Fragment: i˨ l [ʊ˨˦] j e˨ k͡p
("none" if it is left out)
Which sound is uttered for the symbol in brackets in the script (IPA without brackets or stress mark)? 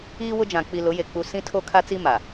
ʊ˨˦